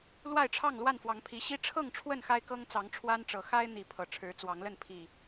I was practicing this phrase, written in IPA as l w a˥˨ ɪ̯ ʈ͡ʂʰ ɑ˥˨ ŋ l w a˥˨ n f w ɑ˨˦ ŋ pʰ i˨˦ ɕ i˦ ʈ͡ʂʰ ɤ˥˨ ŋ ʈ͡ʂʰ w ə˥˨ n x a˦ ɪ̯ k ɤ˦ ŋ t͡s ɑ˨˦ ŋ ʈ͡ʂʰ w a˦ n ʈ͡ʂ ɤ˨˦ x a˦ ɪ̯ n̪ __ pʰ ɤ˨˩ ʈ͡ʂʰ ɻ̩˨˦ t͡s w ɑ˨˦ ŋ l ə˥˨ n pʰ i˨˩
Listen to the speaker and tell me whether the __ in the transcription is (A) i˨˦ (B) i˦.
A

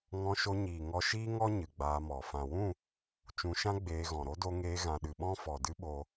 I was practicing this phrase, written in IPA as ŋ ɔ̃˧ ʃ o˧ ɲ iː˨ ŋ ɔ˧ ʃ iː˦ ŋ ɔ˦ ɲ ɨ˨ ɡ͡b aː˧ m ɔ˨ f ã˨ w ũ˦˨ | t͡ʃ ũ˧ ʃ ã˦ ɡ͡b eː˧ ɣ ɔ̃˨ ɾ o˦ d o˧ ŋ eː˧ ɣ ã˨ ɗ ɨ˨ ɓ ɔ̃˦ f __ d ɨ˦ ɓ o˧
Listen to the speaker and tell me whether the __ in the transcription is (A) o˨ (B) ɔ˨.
B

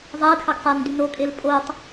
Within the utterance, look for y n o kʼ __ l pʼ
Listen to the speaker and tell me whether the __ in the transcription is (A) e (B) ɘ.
A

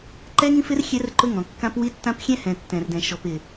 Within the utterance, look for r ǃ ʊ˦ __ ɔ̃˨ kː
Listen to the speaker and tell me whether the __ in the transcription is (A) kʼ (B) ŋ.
B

